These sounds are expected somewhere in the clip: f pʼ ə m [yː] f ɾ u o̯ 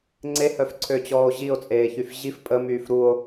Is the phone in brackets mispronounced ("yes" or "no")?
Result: no